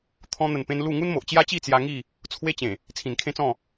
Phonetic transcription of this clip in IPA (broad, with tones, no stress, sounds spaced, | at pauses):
t̪ʰ ɔ̃˧ n̪ ə˨˩ n p ẽ˧ n l u˥˧ ŋ u˦ n m o˨ ʔ t͡ɕ j a˦ t͡ɕ i˥˧ t͡s j a˧ ŋ i˥˧ | t͡sʰ w e˦ t͡ɕ ẽ˨˩ | t͡sʰ ĩ˨˩ n kʰ ẽ˦ t͡s ɔ̃˥˧